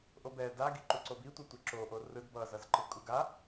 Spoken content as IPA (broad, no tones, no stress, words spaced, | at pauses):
ʔobɛ daɡi ǃuǀobitʷʌ tʷeǁoʔo rɯd bʌzʌzǃɯ kʼuɡa